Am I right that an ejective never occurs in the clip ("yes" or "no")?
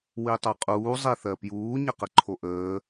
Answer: no